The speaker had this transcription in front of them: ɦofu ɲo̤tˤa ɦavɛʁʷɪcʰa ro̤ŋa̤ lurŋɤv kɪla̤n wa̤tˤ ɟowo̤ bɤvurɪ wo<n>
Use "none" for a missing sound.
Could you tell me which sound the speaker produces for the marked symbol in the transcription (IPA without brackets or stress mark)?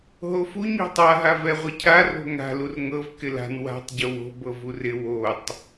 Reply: tˤ